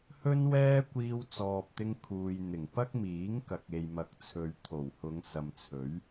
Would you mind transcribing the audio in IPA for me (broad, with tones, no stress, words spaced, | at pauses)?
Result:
hɵ˥nwɛː˥ kʷiː˧wt͡sɔː˨p̚t̪ɪ˧ŋ kʰuː˨jn̪ɪ˨˩ŋ pɐ˥k̚miː˨˥ŋ kɐ˨k̚e˨jmɐ˨k̚t͡sʰɵ˨ɥ t̪ʰo˨˩whʊ˨˧ŋ sɐ˨mt͡sʰɵ˨˥ɥ